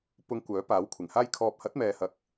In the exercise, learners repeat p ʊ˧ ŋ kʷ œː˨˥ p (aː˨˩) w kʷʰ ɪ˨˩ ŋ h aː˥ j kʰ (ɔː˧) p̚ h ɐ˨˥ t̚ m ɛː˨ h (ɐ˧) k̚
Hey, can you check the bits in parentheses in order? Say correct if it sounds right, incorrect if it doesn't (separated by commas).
incorrect, correct, incorrect